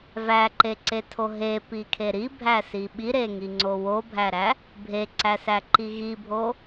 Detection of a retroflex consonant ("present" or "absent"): absent